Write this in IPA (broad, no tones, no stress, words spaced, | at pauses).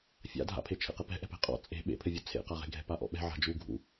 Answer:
fʲa̰dʱa̰pʰe t͡ʃʰḛqɘpɛ̤ ʔɛ̤pɛ̤qʼɔ̰ t͡sʼe̤ ɓḛpʰɘvʲu t͡sʰḛqaʁe̤ ɡʱɛ̤paʔɔ̰ɓɛ̤ ʕa̤d͡ʒu ɡʱṵ